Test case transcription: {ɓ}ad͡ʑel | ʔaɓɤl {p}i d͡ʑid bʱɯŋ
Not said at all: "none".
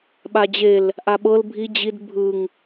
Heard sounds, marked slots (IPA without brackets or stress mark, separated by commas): ɓ, bʱ